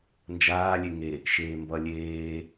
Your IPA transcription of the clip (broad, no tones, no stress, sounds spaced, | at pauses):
n d͡ʒ aː lʲ e ŋ e | ʃ eː m b ʌ lʲ eː